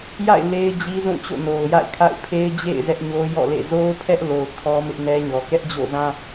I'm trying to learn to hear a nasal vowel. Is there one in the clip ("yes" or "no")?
yes